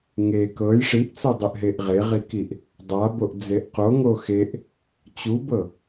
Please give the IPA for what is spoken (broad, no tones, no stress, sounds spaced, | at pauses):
ŋ e k ɤ j ʂ i ʔ t͡s o dˤ ɨ ʔ ɦ e ʔ ʁ e ʁ i k i ʔ | dˤ a b o ʔ d͡z e ʔ q o ŋ o x e ʔ | t͡ɕ u b ɤ